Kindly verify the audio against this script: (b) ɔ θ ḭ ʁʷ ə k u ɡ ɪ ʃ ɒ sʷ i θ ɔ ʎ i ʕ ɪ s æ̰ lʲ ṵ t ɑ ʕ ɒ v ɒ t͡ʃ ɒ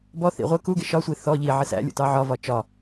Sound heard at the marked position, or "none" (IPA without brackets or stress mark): b